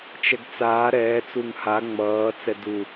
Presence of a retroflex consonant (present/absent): absent